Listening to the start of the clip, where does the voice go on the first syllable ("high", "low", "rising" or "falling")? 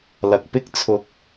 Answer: low